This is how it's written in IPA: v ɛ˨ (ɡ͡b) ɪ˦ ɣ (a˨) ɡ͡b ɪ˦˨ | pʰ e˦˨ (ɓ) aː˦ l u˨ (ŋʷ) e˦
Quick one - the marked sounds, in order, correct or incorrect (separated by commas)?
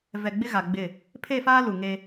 correct, correct, incorrect, incorrect